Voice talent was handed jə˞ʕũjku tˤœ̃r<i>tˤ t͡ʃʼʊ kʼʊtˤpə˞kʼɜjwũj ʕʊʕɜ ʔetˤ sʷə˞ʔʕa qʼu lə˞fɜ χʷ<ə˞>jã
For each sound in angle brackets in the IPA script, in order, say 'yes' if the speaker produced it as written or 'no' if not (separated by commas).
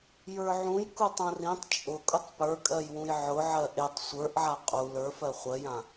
no, no